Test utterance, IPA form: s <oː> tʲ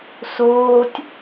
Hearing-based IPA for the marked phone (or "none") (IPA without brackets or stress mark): oː